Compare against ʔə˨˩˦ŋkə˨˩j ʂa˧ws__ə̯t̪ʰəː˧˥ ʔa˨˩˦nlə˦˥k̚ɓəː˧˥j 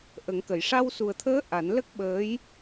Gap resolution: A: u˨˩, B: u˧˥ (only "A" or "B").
A